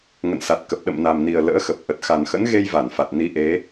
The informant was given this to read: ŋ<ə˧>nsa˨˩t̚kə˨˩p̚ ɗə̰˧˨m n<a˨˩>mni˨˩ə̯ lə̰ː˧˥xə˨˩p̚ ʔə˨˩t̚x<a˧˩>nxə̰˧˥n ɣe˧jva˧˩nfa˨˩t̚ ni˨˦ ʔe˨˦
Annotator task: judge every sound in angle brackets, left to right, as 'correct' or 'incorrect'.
incorrect: ə̰˧˨, correct, incorrect: a˨˩

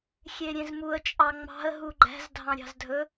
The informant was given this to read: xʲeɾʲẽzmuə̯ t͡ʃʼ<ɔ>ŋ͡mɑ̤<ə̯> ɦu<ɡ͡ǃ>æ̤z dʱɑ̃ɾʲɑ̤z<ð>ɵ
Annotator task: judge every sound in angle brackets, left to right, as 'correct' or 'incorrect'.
incorrect: ɑ, correct, correct, incorrect: dʱ

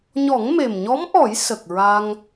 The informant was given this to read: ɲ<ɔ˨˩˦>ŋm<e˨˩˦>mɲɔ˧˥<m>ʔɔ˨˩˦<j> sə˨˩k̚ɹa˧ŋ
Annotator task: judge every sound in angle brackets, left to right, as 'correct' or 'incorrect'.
correct, incorrect: e˨˩, correct, correct

